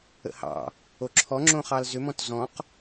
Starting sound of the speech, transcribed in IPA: ə̰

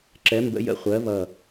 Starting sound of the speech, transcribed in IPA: ǁ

